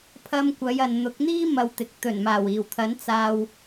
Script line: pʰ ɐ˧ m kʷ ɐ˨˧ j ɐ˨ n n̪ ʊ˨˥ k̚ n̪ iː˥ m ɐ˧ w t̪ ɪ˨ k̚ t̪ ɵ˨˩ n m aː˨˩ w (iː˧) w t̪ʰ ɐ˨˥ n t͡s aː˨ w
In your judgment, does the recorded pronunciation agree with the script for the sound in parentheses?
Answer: no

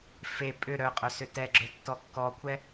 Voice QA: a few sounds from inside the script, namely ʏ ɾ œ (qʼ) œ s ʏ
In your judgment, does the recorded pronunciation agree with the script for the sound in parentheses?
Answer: yes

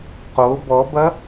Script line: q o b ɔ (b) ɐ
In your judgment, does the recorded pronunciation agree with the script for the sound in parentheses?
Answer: yes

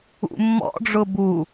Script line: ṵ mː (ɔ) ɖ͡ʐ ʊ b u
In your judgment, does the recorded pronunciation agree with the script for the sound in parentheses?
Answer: no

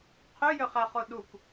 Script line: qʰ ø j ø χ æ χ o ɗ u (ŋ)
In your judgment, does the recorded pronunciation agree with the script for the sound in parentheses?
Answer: no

